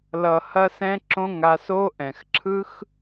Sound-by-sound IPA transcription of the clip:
l ʌ˨ h ɐ˧ s ɛ̃˧ ǁ õ˧ ŋ a˧ s o˦ ʔ ɛ̃˨ x ǁʰ ɯ˦ x

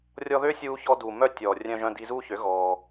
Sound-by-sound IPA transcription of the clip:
rʲ ɔ˧ ð ø˦ sʲ uː˧ ç ɔː˧ d uː˨ m œ˧ tʲ ɔː˨ rʲ œ̃˧ ʒ œ̃˧ d i˧ z uː˧ ç ø˨˦ ɣ ɔː˧

